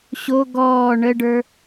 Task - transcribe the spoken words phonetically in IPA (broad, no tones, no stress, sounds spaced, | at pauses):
ɕ o ɡ ɔː ɳ ə ɖ ə˞